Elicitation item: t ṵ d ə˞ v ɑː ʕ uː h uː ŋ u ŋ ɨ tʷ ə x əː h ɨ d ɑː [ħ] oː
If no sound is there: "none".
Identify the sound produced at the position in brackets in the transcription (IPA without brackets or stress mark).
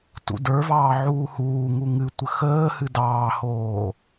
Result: h